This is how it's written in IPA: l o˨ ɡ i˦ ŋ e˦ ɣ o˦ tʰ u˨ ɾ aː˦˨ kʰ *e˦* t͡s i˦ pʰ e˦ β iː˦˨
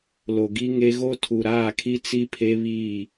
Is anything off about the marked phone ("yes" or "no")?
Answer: yes